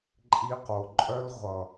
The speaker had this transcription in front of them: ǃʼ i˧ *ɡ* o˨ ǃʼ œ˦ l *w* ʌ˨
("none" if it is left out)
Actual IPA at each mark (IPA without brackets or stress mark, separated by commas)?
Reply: q, ʁʷ